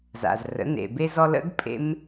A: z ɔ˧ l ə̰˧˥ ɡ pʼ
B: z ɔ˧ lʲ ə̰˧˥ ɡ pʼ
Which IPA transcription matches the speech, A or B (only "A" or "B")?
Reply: A